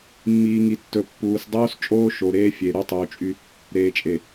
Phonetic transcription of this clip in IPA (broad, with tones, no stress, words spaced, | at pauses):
mːiː˨ŋi˨tːɵ˨ pːuː˨sdˤoː˦s t͡ʃʼoː˦ʃo˨ɾeː˦ fʲe˨ ɾu˦tˤuː˨t͡ʃʼy˦ | ɾeː˨t͡ʃʼe˨